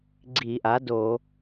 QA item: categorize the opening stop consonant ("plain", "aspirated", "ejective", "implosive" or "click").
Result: click